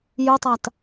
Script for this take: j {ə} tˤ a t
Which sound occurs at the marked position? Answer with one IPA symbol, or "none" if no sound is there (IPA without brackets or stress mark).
ʊ